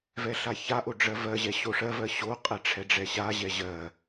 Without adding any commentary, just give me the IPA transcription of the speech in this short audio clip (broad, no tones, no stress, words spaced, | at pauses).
vɛɬaçaʔo ɖ͡ʐɜvɜʑɛ ɕoʂɜvɜ ɕoqʼɛ ʈ͡ʂʰɛɖ͡ʐɛɕaʑɛ ʑɜ